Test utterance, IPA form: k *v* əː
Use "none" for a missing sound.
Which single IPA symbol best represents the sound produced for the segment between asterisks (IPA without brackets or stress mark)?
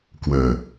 w